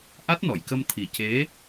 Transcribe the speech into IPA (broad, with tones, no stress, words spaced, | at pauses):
ʔa˦˥t̚nɔ˨˩˨jkə˧m t̪ʰi˨˩ce˧˥